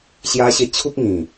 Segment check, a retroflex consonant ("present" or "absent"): absent